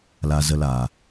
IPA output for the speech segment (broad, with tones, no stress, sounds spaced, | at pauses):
l a˨ z ə˨ l a˨